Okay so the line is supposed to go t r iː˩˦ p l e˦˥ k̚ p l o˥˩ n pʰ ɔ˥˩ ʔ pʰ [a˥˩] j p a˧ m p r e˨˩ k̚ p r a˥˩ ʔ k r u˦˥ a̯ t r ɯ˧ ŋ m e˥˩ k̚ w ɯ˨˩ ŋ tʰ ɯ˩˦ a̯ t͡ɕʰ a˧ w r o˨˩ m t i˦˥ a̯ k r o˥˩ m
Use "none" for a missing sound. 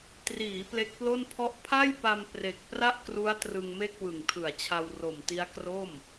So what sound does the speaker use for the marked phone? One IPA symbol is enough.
a˥˩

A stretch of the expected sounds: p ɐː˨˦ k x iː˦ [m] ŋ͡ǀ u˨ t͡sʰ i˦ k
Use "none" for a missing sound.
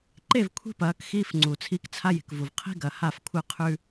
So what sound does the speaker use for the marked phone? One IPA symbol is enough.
f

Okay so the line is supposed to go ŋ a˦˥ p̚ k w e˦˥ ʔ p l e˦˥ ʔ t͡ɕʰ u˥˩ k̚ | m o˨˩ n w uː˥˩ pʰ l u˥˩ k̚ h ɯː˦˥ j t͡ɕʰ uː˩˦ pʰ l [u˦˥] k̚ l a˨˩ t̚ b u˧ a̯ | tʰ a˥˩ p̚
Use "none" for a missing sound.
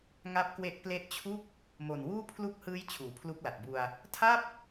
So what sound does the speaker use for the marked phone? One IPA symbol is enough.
u˦˥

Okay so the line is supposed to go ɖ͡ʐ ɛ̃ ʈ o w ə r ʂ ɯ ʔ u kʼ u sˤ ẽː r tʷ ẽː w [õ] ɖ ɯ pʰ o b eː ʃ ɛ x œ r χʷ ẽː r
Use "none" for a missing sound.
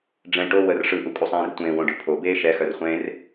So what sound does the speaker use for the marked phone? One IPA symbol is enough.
õ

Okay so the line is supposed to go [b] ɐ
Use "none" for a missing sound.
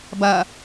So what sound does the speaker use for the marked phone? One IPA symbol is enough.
b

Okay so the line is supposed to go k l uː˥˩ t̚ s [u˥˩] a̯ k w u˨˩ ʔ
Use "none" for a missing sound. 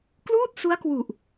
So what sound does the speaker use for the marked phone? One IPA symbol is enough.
u˦˥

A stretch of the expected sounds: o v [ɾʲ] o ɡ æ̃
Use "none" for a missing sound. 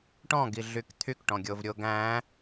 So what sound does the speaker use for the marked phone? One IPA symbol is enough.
ɾʲ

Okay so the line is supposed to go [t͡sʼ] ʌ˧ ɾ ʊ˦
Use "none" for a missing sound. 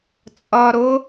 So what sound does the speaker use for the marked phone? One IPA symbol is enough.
t͡sʼ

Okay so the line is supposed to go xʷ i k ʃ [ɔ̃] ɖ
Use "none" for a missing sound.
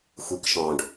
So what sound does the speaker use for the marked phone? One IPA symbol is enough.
ɔ̃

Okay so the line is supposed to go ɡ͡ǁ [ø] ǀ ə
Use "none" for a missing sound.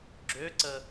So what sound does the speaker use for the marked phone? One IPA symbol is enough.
ø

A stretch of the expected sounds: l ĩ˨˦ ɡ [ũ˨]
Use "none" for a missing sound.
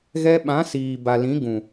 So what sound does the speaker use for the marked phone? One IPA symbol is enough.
ũ˨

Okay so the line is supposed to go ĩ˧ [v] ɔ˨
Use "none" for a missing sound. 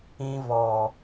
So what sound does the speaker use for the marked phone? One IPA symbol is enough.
v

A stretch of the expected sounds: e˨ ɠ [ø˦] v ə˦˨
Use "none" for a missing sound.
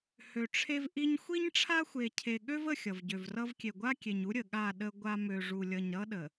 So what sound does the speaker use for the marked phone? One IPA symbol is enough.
ø˦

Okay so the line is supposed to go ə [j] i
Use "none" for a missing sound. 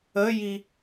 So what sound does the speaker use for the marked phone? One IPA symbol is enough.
j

